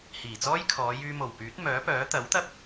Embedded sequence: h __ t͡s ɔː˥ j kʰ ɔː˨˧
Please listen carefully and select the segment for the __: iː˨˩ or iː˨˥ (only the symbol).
iː˨˩